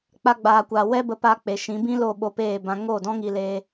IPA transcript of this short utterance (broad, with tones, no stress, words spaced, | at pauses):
k͡pa˧ɡ͡baː˨kʷaː˨ wɛ˦bə˧pa˧ k͡pe˨ʃĩ˨˦bĩ˦ lo˦˨ɓo˧peː˦˨bã˧ ŋo˦˨dɔ̃˦ŋi˧leː˧